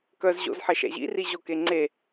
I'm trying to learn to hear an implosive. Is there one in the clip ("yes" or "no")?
no